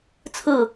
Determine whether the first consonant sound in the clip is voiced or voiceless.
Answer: voiceless